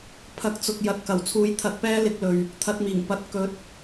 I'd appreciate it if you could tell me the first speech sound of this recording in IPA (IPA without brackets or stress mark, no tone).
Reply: pʰ